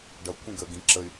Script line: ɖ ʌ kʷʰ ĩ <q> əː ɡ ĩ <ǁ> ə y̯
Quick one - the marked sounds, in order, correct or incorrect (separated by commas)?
incorrect, correct